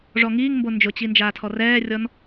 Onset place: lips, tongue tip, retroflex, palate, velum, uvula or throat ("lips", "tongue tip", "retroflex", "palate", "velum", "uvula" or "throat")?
retroflex